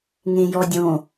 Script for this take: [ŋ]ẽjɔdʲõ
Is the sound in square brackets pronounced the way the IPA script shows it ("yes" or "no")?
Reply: yes